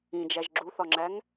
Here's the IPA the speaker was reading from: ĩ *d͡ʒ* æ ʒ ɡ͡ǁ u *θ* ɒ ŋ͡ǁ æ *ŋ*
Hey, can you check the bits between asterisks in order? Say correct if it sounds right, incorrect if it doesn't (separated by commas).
correct, correct, correct